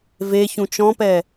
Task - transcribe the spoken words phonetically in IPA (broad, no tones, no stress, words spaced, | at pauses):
ve çũt͡ʃɔ̃pɛ